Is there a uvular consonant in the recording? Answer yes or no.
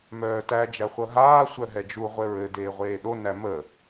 yes